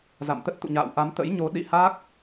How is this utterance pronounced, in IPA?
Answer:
za̰˧˨mt̪ə˦˥t̚t̪ṵ˧˨ɲa̰ː˧˨w ʔa˨˦mt̪ə̰˧˥jɲo˨˦ ɗḭ˧˨ha˦˥k̚

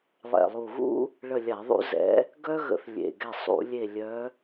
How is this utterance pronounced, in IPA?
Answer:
lˠɛ̰˨˩lˠu˨˩ɣṵ˥ | ɭə˦˨lʲa˧˩˧ðˤṵ˥ zɛ̰˧˥ | ɡœ˥ɣə̰˧˩˧θ lʲḛ˨˩ ɡɛ˦˨ sˤṵ˧˩˧lʲe˦˨ lʲœ˧˥

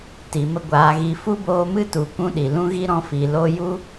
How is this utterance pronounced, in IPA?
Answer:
ti˨mə˦ɡʷaː˨˦ɣi˧ fu˦boː˧mɨ˦tu˨ kʷũ˦ɗi˨ lũ˦ ɣi˦ɾɔ̃˧fi˨lo˦ ju˦

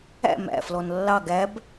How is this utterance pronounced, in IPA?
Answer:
æ̰ mæ̰flɔn lːɑ ɡæb

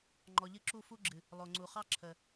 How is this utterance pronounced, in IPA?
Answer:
ŋ͡ǃɔ˨ʎɨ˧ǁu˦˨ fu˦ɡ͡ǁɨ˨ | lˠo˨ŋ͡ǀu˨χɑ˦ ǁʰə˨

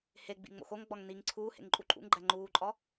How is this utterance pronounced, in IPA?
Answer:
he ɡ͡bḭŋ͡mo̰xoŋɡ͡bɒŋ niŋ ǀʰuːhḛŋ ǃʼuǃʼṵŋɡ͡ǃæ ŋ͡ǃuːǃʼɒ

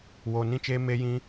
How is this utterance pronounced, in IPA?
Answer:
wo˧ nĩ˧t͡ʃeː˧me˧jĩ˧

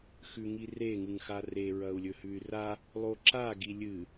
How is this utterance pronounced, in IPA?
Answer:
xʉŋire ŋɨŋxare ɹɐu̯lʲɵhʉy̯ra | lˠoǁa ɡilʲɨ

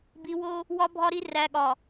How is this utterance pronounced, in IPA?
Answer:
bi˨wo˦ | wɒ˨bʱɒ˨ɾi˨ ræ˨ɠɒ˨

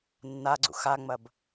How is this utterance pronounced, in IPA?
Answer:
nːaɡ͡ǀṵ xaŋ͡mɐb

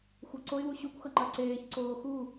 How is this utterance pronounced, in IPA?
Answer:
xʷʌǀoɪ̯wu ɕukʷxʌ ŋ͡ǃaǀeːçǀoː xu

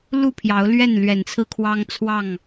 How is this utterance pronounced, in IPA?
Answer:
lu˥˨pʰjɑ˨˦ʊ̯lɥɛ˥˨n lɥɛ˨˩nt͡sʰɹ̩˦kʰwɑ˦ŋ t͡sʰwɑ˥˨ŋ

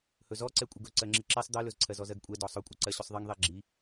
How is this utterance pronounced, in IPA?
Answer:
hɵzɔǀɛ kʷʼəɡɵ ǀɜŋ͡ǁiǁesˤ d̪ɜlɵzǀʰɜzɔ zɜɡkʷʼɛ dɔsˤɵkʷʼə ǀɜɕʏsˤðˤiŋ ðˤɛɡ͡ǁi

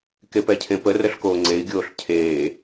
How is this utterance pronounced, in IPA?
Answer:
kepɛcʰẽpə rəɬkoːŋ͡ǀei̯ ɡʲoːɬcʰeː

